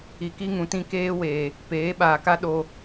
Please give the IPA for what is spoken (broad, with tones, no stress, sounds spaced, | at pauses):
i˨ k i˦ ŋ ũ˨ t ĩ˦ k eː˦ w eː˨ | p eː˨˦ ɓ aː˨ k a˦ ɗ o˨